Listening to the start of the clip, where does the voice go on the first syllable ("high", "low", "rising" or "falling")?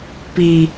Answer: low